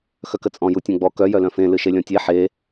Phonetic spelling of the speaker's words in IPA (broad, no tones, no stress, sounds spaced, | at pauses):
x œ k ə t͡sʼ ɔ̃ j u tʲ œ̃ ɡ͡b ɔ k œ j œ l œ̃ f ẽ l ɨ ʃ e lʲ ɔ̃ tʲ e ħ e